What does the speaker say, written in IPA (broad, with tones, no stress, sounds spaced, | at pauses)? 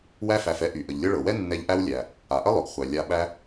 w æ˦ f æ˨ f ɛ˦ ʔ y˩ ʔ ə˩ ʎ lʲ ɤ˦ ɭ ɤ˩ w ɛ˥ nː ɛ˦ ʎ ʔ æ˥ w lʲ æ˨ | a˩ ʔ ə˥ lˠ ʊ˩ ɡ χʷ æ˩ lʲ a˨ ɓ æ˦